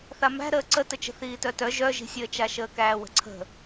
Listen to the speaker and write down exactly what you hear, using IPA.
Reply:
θ a m æ̤ ɾ əː ǀ ə t ə t͡ʃ ə̤ θ iː t œ t œ ʒ œ ʒ i̤ sʲ əː t͡ʃ a ʃ əː k æː w ə̤ ǀʰ ə̤

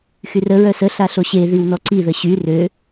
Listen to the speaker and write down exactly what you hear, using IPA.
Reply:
x y r ə ɹ œ s ə ɬ a ɬ o ɕ e ð i w n ɔ ǀ i ð ə ɕ y r ø

